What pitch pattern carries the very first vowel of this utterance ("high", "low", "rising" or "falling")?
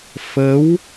rising